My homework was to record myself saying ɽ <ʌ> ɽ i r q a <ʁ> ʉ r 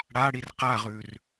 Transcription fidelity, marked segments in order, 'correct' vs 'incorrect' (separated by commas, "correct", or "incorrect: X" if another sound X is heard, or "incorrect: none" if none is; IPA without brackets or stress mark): incorrect: a, correct